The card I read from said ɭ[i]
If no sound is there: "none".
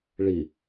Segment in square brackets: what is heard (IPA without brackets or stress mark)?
i